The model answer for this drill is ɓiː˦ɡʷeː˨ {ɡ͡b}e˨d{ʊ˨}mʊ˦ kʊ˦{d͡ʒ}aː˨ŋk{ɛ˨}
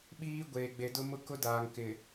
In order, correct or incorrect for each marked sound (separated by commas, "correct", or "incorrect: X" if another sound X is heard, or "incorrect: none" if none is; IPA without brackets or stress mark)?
correct, incorrect: ʊ˦, incorrect: d, incorrect: ɪ˨